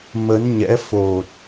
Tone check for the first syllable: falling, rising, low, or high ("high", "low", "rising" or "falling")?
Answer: rising